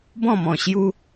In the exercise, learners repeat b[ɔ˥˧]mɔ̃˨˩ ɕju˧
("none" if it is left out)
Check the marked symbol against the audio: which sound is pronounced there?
ɔ̃˥˧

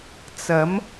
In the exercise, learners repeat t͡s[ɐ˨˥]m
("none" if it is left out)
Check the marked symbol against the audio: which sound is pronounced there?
ɐ˨˥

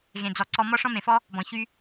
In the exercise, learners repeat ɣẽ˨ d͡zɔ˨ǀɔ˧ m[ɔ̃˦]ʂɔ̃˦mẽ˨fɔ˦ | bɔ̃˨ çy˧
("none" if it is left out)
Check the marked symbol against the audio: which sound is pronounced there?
ɔ˦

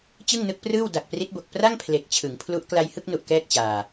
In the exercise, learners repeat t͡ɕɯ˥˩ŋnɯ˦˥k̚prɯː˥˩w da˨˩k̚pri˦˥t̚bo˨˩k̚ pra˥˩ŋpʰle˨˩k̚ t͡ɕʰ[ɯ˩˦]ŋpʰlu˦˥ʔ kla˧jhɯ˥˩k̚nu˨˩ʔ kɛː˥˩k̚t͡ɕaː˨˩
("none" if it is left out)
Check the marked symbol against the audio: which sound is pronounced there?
ɯ˩˦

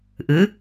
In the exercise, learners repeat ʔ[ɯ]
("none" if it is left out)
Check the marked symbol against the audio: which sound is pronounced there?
ɯ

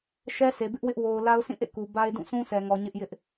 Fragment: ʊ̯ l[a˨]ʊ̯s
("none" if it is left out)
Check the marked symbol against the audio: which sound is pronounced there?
a˦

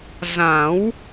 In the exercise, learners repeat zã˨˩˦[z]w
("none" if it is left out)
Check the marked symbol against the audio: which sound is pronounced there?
none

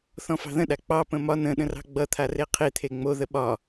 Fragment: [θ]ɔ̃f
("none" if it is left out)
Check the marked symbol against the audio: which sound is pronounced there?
θ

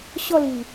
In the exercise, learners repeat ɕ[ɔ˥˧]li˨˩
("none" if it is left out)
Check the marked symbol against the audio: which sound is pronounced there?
ɔ˥˧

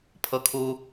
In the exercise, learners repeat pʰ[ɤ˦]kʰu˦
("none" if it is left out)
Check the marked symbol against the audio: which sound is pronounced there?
ɤ˦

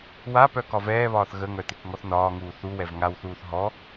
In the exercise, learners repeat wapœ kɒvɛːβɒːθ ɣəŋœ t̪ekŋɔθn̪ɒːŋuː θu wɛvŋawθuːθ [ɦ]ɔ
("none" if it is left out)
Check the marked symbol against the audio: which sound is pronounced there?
ɦ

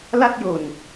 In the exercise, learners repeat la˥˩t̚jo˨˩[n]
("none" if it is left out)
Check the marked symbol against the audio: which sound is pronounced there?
n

